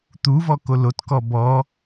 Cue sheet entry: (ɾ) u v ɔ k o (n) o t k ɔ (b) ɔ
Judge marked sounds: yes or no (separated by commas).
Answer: no, no, yes